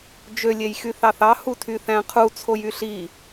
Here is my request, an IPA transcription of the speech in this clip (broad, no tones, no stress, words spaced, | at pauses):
d͡ʒø lʲejxyθɑθɑ hutʰyθæ̃qʰu t͡sʰojyɬi